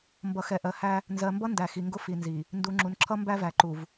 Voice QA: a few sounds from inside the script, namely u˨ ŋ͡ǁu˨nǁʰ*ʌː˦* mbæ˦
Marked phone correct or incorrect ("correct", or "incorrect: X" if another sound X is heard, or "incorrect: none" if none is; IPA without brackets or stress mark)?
incorrect: ʌ˦